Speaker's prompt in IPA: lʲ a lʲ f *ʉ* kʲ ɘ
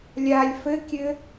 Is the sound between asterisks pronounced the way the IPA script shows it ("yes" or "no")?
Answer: no